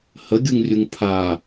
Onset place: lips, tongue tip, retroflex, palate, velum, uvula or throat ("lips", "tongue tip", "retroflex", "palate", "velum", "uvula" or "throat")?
throat